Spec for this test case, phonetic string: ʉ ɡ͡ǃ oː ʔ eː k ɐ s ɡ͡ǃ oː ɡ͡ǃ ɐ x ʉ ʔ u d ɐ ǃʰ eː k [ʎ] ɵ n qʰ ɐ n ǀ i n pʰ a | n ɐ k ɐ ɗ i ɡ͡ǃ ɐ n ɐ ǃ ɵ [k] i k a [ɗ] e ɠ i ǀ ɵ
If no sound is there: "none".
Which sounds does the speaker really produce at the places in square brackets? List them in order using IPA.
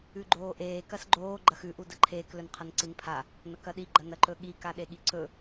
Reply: l, ɠ, ɗ

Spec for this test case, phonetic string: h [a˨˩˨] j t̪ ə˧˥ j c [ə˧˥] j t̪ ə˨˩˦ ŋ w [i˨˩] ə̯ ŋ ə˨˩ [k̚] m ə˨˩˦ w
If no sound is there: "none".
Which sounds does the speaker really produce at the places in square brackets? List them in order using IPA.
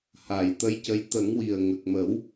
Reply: a˨˩˨, ə˧˥, i˨˩, k̚

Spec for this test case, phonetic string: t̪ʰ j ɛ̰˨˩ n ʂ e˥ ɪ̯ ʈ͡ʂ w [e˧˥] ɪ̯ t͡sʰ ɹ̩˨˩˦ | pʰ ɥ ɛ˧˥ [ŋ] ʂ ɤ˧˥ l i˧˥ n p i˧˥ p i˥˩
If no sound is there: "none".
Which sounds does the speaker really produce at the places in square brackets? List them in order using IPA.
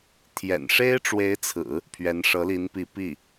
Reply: e˧˥, n

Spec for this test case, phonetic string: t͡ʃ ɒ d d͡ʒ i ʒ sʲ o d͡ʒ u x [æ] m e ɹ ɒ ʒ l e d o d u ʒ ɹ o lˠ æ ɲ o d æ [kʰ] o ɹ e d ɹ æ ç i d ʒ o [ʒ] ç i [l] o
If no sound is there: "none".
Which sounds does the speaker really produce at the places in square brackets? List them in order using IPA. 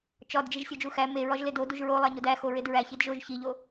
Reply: æ, x, ʒ, ʎ

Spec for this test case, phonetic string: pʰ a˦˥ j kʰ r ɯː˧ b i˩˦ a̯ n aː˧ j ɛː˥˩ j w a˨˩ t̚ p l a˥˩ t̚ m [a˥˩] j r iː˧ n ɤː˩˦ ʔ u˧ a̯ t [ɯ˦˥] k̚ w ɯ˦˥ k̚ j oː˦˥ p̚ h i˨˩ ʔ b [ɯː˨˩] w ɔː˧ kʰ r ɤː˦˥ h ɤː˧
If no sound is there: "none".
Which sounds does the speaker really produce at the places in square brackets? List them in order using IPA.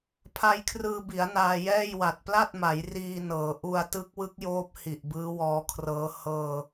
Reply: a˩˦, ɯ˦˥, ɯː˦˥

